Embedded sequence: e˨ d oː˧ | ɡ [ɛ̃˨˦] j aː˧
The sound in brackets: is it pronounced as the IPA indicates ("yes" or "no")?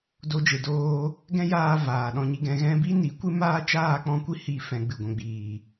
no